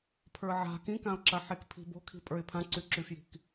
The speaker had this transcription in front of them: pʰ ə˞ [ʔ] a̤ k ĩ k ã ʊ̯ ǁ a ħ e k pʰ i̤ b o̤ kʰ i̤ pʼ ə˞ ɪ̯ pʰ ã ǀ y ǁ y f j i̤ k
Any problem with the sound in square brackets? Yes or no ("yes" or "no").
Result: yes